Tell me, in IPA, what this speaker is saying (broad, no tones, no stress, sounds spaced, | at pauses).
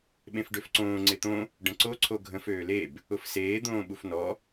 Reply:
ɓ ẽ f ɖ ø f ǀ õː ŋ͡ǀ e t̪ õ | ɖ ə̃ ǀ o ǀʰ o ɡʱ ə̃ f øː l e b | ʊ f s eː d̪ õː ɓ u f n ɔ